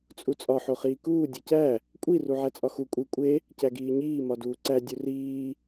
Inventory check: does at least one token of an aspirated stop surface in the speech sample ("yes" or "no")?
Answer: no